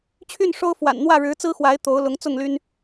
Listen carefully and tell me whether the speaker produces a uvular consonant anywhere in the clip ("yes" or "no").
no